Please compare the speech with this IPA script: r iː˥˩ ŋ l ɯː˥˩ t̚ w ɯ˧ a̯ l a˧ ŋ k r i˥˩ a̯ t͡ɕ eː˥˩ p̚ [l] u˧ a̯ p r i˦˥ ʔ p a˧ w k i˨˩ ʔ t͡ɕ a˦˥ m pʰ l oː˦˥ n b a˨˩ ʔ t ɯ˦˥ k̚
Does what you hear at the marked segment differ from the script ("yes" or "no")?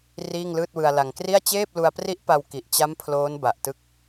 no